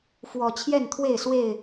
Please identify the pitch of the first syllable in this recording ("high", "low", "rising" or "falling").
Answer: low